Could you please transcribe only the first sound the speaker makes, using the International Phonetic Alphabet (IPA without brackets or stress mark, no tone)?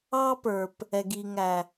ɑ